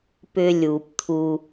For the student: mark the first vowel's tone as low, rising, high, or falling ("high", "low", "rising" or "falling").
high